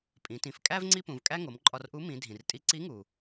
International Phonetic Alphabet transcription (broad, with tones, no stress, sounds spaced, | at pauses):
pʼ ĩ˩˧ t ĩ˩˧ f kʼ æ˥ v ŋ͡ǀ i˥ p ũ˩˧ v kʼ æ˥ ŋ o˩˧ m ǃʼ ɒ˧ r ʔ u˧˥ m ĩ˩˧ dʱ ĩ˩ r tʼ i˧˥ ǀ i˧˥ ŋ u˩